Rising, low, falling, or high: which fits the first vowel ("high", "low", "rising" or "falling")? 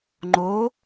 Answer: rising